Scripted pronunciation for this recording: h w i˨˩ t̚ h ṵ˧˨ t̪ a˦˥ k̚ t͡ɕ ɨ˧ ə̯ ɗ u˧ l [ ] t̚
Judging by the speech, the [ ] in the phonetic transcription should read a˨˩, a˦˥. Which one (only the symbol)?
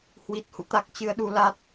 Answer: a˦˥